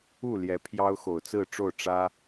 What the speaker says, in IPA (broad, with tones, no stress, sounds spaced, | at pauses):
u˥˨ l j ɛ˨˦ pʰ j ɑ˦ ʊ̯ x o˨˩ ʊ̯ t͡s ɹ̩˥˨ ʈ͡ʂ o˥˨ ʊ̯ ʈ͡ʂ ä˦